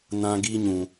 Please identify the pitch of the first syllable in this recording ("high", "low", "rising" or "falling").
high